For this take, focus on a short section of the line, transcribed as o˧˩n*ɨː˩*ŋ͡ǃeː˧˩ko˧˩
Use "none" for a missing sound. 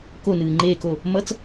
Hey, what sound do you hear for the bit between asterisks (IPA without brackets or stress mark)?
ɨː˩